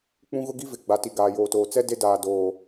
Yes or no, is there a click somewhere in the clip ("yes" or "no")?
no